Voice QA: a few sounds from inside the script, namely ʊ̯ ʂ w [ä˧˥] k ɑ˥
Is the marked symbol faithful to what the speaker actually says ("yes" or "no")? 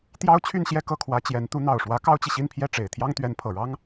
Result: yes